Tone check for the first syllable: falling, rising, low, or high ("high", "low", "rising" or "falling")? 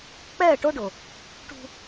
falling